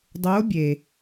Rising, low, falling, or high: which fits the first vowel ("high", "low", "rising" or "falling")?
rising